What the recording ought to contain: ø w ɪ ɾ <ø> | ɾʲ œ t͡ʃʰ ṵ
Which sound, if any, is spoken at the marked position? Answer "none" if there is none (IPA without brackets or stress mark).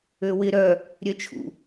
œ